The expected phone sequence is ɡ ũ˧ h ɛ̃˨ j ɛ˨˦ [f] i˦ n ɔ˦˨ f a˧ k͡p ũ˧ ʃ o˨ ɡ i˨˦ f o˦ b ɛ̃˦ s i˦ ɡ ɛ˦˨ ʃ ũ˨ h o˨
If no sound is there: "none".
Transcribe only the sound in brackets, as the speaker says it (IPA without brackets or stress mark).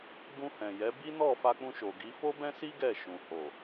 b